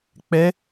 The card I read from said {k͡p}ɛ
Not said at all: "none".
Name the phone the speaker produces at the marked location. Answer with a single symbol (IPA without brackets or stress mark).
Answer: k͡p